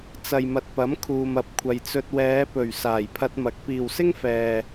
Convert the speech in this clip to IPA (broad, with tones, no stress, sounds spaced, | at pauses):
t͡s ɐ˨ j m ɐ˨ t̚ p ɐ˨˥ m kʰ uː˨ m ɐ˨˥ p̚ kʷʰ ɐ˨ j t͡s ɵ˧ t̚ w ɛː˨˧ p ɵ˨˩ ɥ s aː˨˩ j pʰ ɐ˧ t̚ m ɐ˨˥ k̚ p iː˨ w s ɪ˥ ŋ f ɛː˨